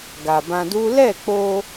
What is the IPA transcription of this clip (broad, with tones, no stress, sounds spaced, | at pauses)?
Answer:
ɡ a˨ b ã˧ d u˦ l ɛ˦˨ k͡p o˧